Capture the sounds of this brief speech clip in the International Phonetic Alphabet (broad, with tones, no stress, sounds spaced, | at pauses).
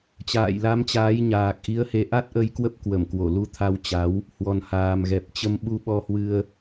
t͡ɕ a̰ː˧˨ j l a˨˦ m t͡ɕ aː˨˦ j ɲ aː˨˩ k̚ ʔ i˨˦ ə̯ h e˨˦ ʔ a˦˥ t̚ ʔ ə˧ j k w ə˦˥ p̚ k w ə˧˩ m k w o˧˩ l u˧ t̪ʰ a˧ w t͡ɕ a˨˦ w | h w ɔ˨˩ n h aː˨˩ m ɣ ɛ˨˩ p̚ t͡ɕ ə˧ m ɓ u˧ ɓ ɔ˧ h w ɨ˧ ə̯